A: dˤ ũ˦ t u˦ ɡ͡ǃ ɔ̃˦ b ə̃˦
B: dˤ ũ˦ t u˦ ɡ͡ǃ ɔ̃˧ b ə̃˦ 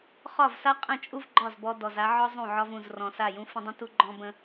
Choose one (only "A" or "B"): A